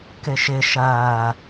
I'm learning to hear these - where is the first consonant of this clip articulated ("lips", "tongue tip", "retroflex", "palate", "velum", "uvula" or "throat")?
velum